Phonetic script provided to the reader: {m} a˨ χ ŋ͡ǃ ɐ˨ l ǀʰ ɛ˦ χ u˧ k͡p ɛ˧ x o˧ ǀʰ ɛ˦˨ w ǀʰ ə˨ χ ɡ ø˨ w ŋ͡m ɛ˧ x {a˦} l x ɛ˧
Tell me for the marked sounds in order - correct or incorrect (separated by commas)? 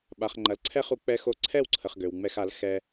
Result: incorrect, incorrect